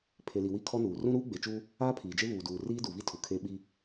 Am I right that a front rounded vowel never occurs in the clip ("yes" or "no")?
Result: yes